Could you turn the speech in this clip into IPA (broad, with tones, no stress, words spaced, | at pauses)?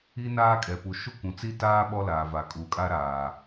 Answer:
i˦ naː˦kʼɛ˨pu˨ ʃu˦ kʷũ˨t͡si˦taː˦ ɓɔ˦laː˨va˨ kʼu˨kʼa˦ɾaː˨